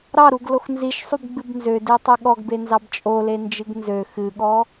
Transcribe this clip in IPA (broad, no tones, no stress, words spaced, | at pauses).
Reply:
ɾɑɾuɡlox nziʃsˤubɡ͡bɨb nzødetˤø ɠɔɡbenzɑb t͡ʃʼolend͡ʒɨɡ nzø xɨɠɔ